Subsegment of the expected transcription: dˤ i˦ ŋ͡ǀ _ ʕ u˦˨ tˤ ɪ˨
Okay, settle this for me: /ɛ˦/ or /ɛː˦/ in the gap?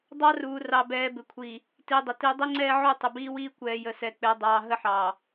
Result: ɛː˦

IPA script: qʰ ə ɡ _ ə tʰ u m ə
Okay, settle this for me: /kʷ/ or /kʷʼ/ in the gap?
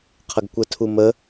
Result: kʷ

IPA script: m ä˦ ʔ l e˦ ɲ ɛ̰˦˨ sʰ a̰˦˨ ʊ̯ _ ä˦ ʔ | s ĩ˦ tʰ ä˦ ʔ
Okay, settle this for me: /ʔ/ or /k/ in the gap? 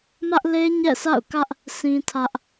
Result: k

